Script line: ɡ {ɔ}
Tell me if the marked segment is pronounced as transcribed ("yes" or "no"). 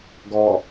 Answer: yes